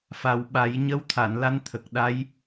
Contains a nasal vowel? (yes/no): no